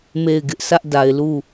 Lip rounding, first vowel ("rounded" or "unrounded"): unrounded